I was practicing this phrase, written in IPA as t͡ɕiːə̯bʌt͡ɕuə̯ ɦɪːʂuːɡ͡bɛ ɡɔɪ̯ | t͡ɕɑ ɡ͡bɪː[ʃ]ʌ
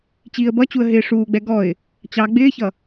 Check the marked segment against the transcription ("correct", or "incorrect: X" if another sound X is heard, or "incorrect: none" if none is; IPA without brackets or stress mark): incorrect: ç